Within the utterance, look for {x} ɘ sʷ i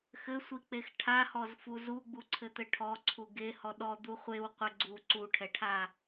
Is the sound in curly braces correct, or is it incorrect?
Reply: correct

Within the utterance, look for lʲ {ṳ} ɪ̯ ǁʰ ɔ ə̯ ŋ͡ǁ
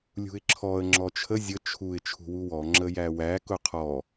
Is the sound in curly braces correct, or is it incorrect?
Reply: correct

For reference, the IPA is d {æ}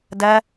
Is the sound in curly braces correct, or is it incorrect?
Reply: incorrect: ɐ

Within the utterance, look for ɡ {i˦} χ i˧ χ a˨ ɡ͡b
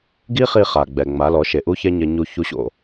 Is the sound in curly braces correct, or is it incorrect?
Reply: correct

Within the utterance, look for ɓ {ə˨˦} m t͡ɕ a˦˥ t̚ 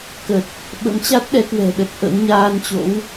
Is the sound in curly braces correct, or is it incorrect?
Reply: incorrect: ə̰˧˥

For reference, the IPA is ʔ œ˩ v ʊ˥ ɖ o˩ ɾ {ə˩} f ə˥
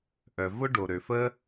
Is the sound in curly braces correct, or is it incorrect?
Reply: incorrect: ø˩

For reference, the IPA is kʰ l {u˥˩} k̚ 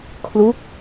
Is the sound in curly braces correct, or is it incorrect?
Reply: incorrect: u˦˥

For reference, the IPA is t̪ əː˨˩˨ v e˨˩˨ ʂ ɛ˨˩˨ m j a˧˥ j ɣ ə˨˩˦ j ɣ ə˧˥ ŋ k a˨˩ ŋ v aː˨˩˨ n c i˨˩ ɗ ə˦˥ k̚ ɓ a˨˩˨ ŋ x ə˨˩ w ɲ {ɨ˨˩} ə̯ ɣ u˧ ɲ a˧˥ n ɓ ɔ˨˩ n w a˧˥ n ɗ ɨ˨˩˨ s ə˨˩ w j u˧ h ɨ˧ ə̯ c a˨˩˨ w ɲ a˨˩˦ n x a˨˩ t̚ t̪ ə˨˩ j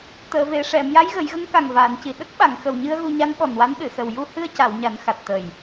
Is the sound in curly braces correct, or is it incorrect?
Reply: incorrect: ɨ˧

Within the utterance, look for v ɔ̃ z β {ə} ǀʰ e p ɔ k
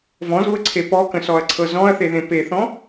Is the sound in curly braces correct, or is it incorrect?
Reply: correct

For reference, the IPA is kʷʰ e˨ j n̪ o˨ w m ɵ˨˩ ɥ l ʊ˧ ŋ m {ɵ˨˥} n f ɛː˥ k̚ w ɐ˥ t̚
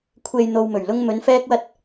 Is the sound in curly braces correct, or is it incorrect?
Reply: incorrect: ɵ˨˧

